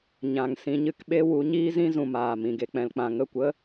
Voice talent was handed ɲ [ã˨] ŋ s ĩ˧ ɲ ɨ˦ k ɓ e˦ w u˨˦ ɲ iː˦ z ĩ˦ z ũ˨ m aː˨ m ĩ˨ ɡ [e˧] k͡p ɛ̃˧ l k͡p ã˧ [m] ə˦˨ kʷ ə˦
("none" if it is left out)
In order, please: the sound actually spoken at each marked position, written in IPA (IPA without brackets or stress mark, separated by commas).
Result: ã˨, e˧, ŋ